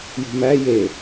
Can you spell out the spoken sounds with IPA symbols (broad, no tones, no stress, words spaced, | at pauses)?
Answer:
jṳmæ je